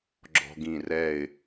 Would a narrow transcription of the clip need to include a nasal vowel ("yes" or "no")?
yes